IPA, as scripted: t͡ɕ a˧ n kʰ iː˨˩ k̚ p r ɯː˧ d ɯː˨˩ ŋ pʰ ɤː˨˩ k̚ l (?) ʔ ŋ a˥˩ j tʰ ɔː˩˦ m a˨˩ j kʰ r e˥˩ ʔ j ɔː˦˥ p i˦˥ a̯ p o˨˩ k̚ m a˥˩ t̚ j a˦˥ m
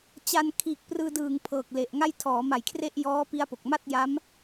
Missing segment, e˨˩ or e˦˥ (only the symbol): e˨˩